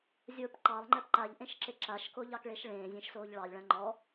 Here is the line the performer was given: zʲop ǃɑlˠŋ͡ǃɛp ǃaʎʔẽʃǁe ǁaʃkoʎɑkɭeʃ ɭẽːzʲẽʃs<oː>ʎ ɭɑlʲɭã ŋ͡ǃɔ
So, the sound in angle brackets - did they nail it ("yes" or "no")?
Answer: yes